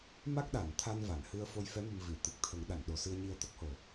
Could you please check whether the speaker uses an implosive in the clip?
yes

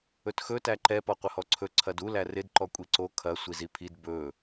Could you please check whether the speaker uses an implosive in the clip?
no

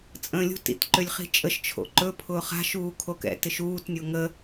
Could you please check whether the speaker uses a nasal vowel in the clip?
yes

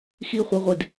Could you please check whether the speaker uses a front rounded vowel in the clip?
yes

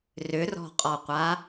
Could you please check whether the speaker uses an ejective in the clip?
yes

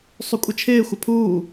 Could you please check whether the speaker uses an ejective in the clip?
yes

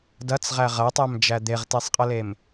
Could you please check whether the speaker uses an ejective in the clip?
yes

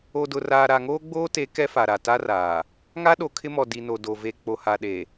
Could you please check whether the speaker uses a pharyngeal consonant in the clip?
no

